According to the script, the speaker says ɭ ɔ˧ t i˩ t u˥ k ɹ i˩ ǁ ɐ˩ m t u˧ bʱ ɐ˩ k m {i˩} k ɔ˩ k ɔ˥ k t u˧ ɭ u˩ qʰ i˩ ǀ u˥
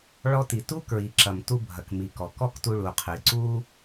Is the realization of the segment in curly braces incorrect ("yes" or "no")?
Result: no